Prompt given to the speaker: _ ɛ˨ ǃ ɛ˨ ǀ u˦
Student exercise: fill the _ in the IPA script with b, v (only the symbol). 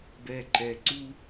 b